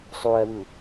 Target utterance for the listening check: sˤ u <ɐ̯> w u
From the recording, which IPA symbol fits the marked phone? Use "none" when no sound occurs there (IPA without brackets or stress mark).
ɐ̯